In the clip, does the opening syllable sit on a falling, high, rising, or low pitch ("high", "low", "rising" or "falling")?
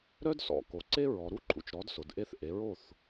high